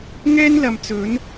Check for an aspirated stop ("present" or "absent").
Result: absent